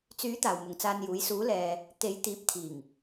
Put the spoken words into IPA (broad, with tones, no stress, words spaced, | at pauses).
t͡syː˨˥ t̪aː˨wmʊ˨ŋt͡saː˧njuː˨˥j suː˨˥ lɛː˨ | t̪e˨˥jt̪iː˨˥p̚t̪ʰiː˨˩ŋ